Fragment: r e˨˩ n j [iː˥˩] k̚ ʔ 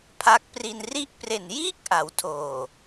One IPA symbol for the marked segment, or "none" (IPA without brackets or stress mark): iː˥˩